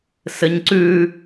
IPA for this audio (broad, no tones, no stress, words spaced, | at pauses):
sɘɲǀʉ